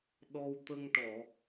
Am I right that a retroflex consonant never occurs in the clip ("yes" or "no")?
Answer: no